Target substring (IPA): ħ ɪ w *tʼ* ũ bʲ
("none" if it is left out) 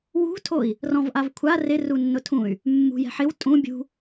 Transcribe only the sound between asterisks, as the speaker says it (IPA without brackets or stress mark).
tʼ